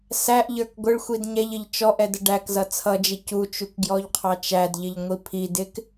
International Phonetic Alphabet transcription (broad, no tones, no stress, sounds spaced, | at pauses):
s æ ʔ ʎ ə˞ k ɡʷ ɪ ɭ xʷ i d ɲ ɛ ʎ ɪ ʎ t͡ʃ ɔ ʔ ɛ d ə ɖ æ k z ʌ t͡sʰ ʌ d͡ʒ ɪ c u t͡ʃ u k ɡ j ɔ ʎ qʰ ɑ t͡ʃ æ d ʎ ɪ ʎ ŋʷ i pʰ i d ɪ k